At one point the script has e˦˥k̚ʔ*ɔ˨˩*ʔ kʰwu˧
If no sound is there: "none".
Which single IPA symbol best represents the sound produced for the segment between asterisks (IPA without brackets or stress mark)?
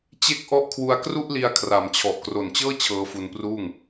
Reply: ɔ˦˥